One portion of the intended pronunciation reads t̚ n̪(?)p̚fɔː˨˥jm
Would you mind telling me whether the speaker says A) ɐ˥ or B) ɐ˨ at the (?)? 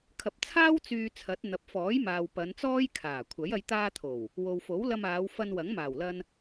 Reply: B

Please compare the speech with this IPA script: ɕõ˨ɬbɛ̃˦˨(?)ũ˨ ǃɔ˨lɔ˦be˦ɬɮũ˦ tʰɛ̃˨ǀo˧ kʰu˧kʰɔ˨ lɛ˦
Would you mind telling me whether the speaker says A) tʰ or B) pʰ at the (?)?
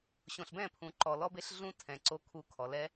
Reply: B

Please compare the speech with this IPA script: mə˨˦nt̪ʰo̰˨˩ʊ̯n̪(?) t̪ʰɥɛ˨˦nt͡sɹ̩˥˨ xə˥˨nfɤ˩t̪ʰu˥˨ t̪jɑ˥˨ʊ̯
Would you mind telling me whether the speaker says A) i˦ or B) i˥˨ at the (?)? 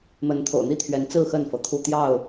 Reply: A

